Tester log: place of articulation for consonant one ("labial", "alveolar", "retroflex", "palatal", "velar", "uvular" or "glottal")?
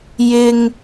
palatal